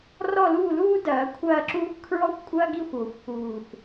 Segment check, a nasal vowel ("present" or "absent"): absent